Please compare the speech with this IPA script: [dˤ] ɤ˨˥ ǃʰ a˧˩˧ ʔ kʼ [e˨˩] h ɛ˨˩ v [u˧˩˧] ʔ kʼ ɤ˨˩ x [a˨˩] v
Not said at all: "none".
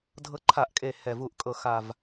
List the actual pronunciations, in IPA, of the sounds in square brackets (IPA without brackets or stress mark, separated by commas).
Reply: dʱ, e˨˩, u˧˩˧, a˨˩